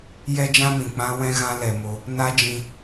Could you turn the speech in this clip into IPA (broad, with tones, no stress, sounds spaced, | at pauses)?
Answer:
j ɛ˦ d͡ʒ ã˦ m ĩ˨ k͡p ã˦ w ɛ̃˦ ɣ ã˦ l ɛ˧ m o˦ | n a˦ d͡ʒ ĩ˧